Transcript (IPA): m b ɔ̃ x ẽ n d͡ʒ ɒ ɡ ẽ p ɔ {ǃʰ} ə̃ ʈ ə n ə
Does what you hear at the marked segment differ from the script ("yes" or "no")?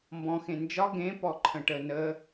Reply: no